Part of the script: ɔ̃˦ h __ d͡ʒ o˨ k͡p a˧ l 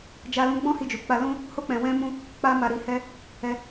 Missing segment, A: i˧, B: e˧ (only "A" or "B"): A